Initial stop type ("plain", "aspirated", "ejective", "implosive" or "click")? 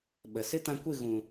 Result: implosive